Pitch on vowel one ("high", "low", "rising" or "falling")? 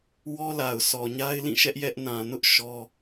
high